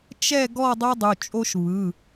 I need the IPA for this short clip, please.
t͡ʃɛ˥˨ ɡɔ˥˨dˤɵ˦ dˤu˩˧˩t͡ʃʼo˦ʃ βɯ˩˧˩

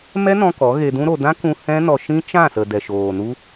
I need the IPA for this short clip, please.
mɛ˦nɔ̃˧ kɔ˨˦ɣe˧dũ˦ɾo˧ dã˦kũ˧ hɛ̃˦nɔ˧ʃĩ˦ t͡ʃã˦˨sə˨ dɛ˨ʃoː˨nu˦

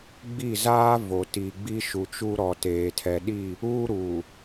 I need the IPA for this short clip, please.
ɡ͡bi˦˨ zaː˦vo˨ti˨ ɡ͡bi˦ʃu˨t͡ʃu˦ ɾɔ˨teː˨ tʰɛ˨ɗi˦˨ | uː˦ɾuː˨

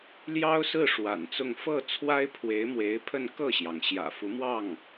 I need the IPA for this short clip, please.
ljɑ˥ʊ̯sɹ̩˥˩ ʂwa̰˨˩nt͡sʊ˥˧ŋ fɤ˥˩ t͡sʰwa˥ɪ̯pʰwe˧˥ɪ̯mwe˧˥ɪ̯pʰə˥˧n kɤ˥˩ɕjɑ˩ŋ ɕjä̰˨˩fu˧˥ mwɑ˥˩ŋ

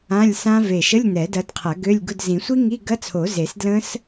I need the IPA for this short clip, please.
ã˧˥˧lʲsã˦˥ ve˧˩ʃə˧˥˧lʲ nɛ˨˩˦dɐ˨˦dqʰɐ˨˩˦ ɡø˧˥˧lʲɡʊ˧˥˧d zĩ˨˩˦sʷi˦˥ŋi˧˥˧ ɡɐ˧˥˧ t͡sʰo˨˩˦ze˨˩˦s dlə̃˦˥s

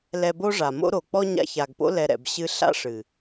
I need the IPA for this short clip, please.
lɛ˧bo˦ ʐa˨mo̰˦ ɾo˨ k͡pɔ˦ɲa̰˧ça˨ɡpo̰˦ lɛ˧ɾɛ̰˨bɕɨ˦ ɬa̰˦ʂɨ˨

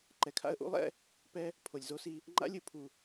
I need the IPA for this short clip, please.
ǃɛ˨kʰa̰˦ə̯ʔṵ˦lˠɛ̰˦ | pɛ˧ | pʰo˨lʲzo˦si˧ | ŋ͡ǃa̰˦lʲɯ˨pʰu˨

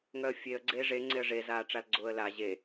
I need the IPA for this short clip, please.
ŋœə̯fʲeə̯ ɡ͡ǀeːʐe ŋ͡ǀeə̯ʐezaːʈ͡ʂal ɡ͡ǀʊːə̯la ʑe

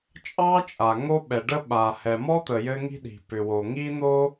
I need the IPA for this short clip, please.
t͡ʃʼɑ˥t͡ʃʼa˩ ŋo˥ɓɛ˩ɖə˥ ɓa˩ hɛ˩mɔ˥t̪ə˩ jɘ˥ŋi̤˥ɗi̤˩ pʏ˩wo˩ ŋi˥n̪o˥

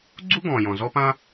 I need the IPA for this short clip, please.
ɡ͡ǀu˥ɡɔ̃˩jɔ̃˩ zɔ˥pã˥

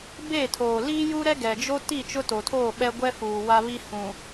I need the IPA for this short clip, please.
be˦˨tʰoː˨ liː˦ju˦ɾɛ˦ ɡɛ˨ d͡ʒo˦ ti˦˨ t͡ʃʊ˦to˨tʰoː˦˨ ɓɛ˦ɡʷɛ˦ fuː˨wa˦ βi˦ hũ˨

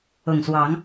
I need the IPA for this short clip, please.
ʊ˨˩ŋswɑ˨˦ŋ

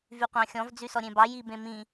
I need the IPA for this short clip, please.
vyqʷɑ̃xʲɔ̃v d͡zysɔɾʲẽbɑ jibẽmĩ

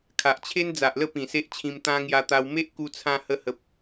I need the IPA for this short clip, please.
kʰa˨ʔt͡ɕʰe˦n d͡za˨ʔlə˥˧ pĩ˨˩se˦ʔt͡ɕʰĩ˧m t̪ã˧ ŋja˧t̪a˧w me˦ʔ ku˧ t͡sʰã˧hə˧hə˨p̚

